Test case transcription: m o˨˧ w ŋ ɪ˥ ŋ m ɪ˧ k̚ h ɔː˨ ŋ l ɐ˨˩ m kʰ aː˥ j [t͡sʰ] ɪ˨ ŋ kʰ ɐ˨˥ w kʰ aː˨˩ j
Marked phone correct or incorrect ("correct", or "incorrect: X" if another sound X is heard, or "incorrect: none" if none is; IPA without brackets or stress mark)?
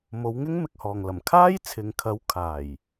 correct